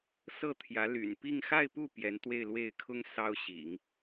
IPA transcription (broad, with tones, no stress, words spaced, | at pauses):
sɤ˥˩t̪ʰjä˧˥ly̰˨˩n pi˥˧ŋ xa˥˧ɪ̯pu˥˩ pjɛ˧˥nt̪we˥˧ɪ̯lwe˥˩ɪ̯ kʰʊ˥ŋ sɑ˥ʊ̯ɕḭ˨˩˦ŋ